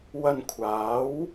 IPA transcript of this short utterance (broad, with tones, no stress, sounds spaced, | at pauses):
w ɐ˧ n kʷʰ aː˨˥ w